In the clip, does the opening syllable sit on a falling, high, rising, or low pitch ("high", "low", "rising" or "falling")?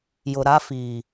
low